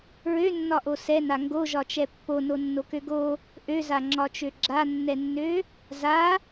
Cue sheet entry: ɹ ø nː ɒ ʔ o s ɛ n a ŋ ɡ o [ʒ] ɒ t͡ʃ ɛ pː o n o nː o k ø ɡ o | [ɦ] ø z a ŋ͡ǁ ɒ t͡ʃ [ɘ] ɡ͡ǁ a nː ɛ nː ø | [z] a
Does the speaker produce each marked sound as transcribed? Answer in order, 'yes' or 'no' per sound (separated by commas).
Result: yes, no, no, yes